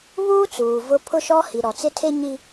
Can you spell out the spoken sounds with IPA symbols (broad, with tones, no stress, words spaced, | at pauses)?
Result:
βuː˦t͡suː˨ vʊ˦ pʰʊ˦ʃɔ˦hi˨ɾɔ˨ t͡sɪ˦tʰe˦ɲi˦